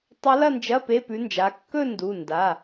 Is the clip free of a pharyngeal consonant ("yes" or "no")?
yes